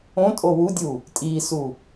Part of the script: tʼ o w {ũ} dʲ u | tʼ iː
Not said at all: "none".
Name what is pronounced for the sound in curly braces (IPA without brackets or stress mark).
u